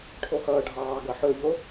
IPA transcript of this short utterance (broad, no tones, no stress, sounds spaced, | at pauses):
ʈʰ o h ʌː ɖʱ ɑː ɡ ʌ ħ ɵ ʎ o